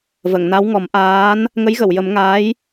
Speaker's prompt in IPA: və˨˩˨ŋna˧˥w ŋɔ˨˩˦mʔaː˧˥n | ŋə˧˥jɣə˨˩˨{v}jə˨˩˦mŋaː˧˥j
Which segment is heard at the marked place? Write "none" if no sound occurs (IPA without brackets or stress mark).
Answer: w